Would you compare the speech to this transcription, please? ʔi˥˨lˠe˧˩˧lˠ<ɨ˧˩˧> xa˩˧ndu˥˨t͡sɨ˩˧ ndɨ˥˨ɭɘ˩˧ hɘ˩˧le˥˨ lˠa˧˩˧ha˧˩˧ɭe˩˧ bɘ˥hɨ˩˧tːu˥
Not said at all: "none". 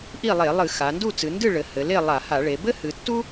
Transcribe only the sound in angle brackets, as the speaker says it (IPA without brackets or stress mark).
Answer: ɨ˧˩˧